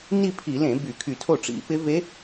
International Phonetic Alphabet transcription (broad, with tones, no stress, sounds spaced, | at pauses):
n i˥˧ pʰ i˧˩˧ l ẽ˧˩˧ b y˧˩˧ kʰ y˧˩˧ tʰ o˥˩ ʈ͡ʂ ḭ˧˥ p ɪ˧˥ v e˧˥